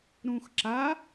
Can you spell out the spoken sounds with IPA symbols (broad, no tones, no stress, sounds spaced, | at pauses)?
ɾ ũ x ǁ a